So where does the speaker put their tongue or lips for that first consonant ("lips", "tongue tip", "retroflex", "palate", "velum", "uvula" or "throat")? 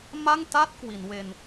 lips